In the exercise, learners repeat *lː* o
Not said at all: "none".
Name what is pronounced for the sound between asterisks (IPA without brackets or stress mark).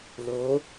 l